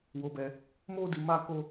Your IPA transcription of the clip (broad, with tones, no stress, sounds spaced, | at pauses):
w o˧ b ɛ˧ | m o˦ d i˧ m a˦ k o˦